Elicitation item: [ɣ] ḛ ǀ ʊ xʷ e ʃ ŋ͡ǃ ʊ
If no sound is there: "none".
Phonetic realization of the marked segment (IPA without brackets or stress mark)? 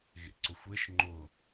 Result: ɣ